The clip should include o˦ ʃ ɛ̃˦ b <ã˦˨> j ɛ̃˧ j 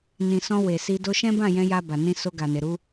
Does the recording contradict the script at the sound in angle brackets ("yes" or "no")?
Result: no